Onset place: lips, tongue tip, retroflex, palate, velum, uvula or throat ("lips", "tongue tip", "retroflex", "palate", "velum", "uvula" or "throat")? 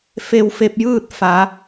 lips